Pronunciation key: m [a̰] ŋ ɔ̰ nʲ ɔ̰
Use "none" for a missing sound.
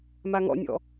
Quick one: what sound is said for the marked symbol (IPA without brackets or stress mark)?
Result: a